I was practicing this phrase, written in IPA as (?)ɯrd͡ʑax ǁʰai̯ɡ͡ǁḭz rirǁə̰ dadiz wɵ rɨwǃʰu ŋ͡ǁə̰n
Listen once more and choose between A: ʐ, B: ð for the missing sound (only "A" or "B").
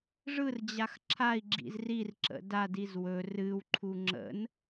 A